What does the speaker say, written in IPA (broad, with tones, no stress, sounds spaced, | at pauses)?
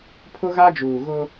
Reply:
pʰ ʊ˦ ɣ a˦ d͡ʒ uː˨ ɣ ʊ˦